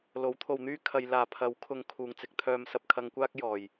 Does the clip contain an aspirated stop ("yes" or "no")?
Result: yes